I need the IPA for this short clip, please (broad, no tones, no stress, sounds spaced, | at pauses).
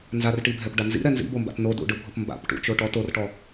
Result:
n z a r ʈ i bʱ ɛ p ɖ a n z ḭ ɾ ɛ n z ḭ b o m b a̰ t n o d ṵ ɖ ɯ bʱ o p m b a̰ p ʈ ṵ t͡ʃ o ʈ ɔ t o r ʈ ɔ